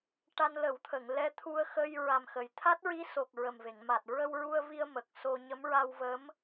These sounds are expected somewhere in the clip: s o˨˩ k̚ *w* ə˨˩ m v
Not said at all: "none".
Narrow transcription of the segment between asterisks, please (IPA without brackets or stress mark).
ɹ